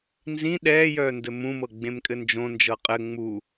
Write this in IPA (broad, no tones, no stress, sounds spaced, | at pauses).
n z ĩ ɗ ɛː j œ n d ɘ m ũ m ɤ ɡ͡b ẽ m kʼ ɘ n d͡ʒ õ n d͡ʒ ɤ qʼ ɘ ŋ͡m u